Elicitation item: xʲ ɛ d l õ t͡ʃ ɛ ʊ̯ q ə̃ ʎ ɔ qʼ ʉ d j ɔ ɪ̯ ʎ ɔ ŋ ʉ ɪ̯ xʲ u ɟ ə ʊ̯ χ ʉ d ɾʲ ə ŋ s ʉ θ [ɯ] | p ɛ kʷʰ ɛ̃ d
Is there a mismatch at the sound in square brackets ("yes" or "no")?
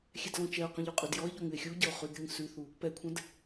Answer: yes